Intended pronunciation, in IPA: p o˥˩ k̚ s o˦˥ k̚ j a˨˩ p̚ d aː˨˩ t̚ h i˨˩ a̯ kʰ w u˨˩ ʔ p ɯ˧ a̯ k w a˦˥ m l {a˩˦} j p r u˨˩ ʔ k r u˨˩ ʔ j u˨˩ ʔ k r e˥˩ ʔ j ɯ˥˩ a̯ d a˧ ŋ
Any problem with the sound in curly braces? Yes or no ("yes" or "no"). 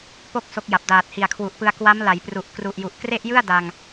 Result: no